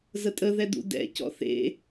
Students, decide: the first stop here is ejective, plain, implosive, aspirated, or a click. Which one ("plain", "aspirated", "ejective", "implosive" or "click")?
ejective